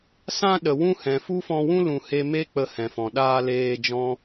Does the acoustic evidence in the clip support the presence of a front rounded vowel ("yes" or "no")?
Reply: no